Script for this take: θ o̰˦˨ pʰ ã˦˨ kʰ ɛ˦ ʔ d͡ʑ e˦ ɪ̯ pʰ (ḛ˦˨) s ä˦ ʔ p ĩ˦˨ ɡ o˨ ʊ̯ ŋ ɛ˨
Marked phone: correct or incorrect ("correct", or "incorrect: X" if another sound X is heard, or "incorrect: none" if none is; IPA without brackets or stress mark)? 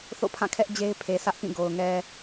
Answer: incorrect: e˨